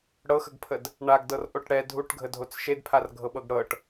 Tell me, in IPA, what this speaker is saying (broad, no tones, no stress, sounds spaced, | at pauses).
ɽ ɤ x ə ɡ pʰ ə d | ɳ a ɡ d ɤ r ʔ o ʈ ɽ ɛ dʱ u ʈ ɡʱ ə dʱ o t͡s ʃ e d pʰ a r ɡʱ ɤ ɓ ɤ ɡ ɽ ɤ ʈ